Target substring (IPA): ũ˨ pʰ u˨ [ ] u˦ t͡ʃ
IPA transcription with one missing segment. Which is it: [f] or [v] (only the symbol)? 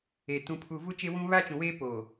v